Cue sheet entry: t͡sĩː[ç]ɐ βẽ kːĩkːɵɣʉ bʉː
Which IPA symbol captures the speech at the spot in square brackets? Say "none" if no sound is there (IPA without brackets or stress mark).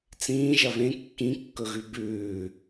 ʒ